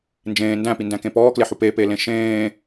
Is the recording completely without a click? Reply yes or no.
yes